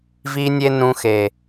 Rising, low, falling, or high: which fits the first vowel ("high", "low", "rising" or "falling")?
high